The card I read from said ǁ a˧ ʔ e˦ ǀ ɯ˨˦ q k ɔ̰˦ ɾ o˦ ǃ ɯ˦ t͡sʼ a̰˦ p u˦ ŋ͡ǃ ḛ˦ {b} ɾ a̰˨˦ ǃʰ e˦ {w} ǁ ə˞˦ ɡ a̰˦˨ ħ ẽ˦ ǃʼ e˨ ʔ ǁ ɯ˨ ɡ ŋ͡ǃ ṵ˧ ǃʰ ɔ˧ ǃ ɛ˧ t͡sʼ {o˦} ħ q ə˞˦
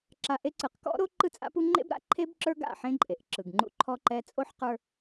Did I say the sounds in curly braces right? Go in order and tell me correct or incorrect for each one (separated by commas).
correct, incorrect, correct